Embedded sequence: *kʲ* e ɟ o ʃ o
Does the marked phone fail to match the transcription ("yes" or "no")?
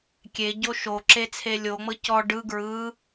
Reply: no